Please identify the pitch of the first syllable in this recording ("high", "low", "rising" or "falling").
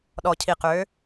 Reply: low